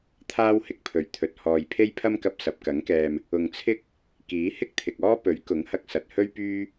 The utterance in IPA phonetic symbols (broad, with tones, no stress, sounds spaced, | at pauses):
t̪ʰ aː˥ w h ɪ˧ k̚ pʰ ɵ˨˩ ɥ t̪ʰ ɵ˨ t̚ h ɔː˨ j pʰ e˥ j pʰ ɐ˥ m k ɐ˧ p̚ s ɐ˨ p̚ k ɐ˨˥ ŋ k ɛː˧ m | ʊ˨ ŋ t͡sʰ ɪ˥ k̚ | k iː˨˥ h ɪ˥ k̚ t̪ʰ ɪ˨ k̚ ɔː˥ p ɵ˨˥ ɥ k ʊ˨˥ ŋ h ɐ˧ k̚ s ɐ˨ t̚ h ɵ˥ ɥ p yː˥